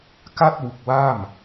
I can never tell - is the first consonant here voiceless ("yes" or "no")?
yes